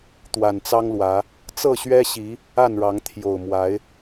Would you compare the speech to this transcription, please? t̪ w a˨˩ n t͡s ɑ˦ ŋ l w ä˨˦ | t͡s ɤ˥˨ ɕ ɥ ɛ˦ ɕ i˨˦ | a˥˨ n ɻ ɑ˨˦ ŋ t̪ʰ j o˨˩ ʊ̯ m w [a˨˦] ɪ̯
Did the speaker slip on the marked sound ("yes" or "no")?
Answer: no